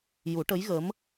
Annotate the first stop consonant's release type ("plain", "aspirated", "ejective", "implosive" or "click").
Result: plain